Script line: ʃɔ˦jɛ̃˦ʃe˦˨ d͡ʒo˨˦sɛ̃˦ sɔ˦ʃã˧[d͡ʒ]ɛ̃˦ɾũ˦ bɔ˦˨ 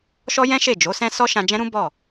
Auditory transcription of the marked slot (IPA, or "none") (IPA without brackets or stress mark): d͡ʒ